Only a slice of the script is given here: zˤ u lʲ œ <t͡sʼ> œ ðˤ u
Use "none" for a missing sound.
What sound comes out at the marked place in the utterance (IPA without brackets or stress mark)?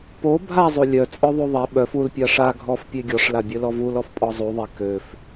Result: t͡sʼ